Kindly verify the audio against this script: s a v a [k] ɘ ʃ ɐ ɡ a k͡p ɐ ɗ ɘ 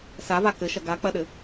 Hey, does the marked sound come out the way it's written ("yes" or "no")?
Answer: yes